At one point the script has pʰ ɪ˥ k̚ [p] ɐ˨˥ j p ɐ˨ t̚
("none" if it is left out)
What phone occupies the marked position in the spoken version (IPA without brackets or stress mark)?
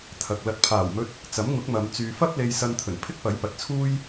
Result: p